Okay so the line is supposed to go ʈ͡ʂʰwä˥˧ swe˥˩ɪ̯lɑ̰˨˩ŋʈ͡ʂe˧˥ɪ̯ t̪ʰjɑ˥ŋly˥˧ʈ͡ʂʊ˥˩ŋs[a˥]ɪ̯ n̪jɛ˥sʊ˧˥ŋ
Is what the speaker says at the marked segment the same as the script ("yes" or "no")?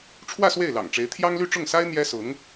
yes